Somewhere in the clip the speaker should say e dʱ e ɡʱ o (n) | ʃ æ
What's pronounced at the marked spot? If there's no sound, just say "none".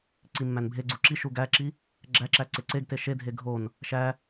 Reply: n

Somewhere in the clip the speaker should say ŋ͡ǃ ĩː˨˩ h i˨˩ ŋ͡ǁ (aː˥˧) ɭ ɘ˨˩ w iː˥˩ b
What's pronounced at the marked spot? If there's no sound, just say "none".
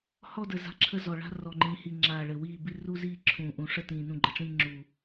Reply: aː˨˩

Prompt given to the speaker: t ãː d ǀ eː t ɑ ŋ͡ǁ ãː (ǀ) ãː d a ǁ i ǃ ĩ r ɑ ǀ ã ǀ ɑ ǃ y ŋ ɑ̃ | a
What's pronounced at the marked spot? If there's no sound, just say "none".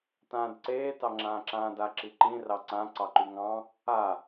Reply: ǁ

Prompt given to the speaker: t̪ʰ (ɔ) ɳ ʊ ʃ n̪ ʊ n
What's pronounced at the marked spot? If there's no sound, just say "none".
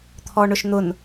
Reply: ɔ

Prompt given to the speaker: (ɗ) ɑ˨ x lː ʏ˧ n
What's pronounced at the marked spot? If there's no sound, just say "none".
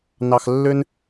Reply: n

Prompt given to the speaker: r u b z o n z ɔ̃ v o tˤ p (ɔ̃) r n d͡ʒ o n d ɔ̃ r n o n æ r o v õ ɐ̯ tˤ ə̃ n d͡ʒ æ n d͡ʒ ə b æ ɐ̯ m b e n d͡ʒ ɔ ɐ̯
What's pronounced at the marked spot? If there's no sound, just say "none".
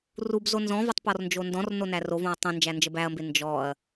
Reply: ɔ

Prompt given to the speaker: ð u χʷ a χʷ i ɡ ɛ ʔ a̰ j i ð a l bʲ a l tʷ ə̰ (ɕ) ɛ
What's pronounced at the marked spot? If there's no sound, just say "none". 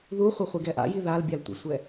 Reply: sʷ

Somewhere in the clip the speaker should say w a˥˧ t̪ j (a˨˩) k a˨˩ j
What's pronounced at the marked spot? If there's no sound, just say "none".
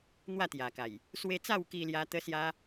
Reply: a˨˩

